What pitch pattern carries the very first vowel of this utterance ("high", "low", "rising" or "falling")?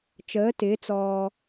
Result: rising